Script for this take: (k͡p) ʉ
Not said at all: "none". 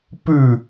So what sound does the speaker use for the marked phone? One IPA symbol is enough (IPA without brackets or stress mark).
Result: p